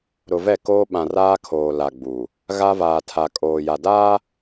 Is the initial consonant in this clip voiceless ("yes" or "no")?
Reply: no